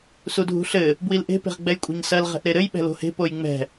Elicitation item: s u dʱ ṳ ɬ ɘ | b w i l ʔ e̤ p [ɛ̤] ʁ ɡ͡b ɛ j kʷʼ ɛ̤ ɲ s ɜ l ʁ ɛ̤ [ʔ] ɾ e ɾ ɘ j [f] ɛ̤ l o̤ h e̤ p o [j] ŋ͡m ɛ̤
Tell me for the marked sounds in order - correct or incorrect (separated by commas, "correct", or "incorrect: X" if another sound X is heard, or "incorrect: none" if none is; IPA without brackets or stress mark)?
incorrect: e̤, correct, incorrect: ɓ, correct